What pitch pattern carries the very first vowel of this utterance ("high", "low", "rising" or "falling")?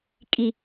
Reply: high